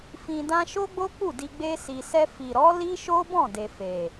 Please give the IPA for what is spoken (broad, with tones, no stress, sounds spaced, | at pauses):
f ĩ˧ d ã˦ ʃ o˦ ɡ͡b o˦ k͡p u˦˨ d i˧ ɡ͡b e˧ s i˨ s ɛ˧ f i˨ ɾ ɔ˨˦ l i˦ ʃ o˦ b ɔ̃˦˨ d e˨ f e˨